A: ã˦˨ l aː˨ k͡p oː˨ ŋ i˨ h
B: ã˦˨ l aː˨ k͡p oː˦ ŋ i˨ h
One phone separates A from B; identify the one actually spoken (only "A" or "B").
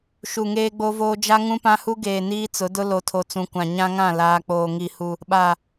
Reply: A